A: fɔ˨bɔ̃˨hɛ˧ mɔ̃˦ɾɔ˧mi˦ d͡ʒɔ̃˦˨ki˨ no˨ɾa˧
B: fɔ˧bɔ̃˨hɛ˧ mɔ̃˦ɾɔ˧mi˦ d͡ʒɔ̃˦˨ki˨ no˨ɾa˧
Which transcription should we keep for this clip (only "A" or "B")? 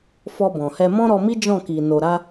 B